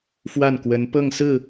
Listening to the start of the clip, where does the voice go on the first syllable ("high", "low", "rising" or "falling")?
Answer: falling